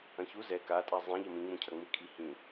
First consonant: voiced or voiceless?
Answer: voiceless